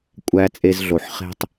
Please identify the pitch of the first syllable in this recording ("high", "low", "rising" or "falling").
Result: low